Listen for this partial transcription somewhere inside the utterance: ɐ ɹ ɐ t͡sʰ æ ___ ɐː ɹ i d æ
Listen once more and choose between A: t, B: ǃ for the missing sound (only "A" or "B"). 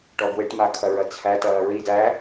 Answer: A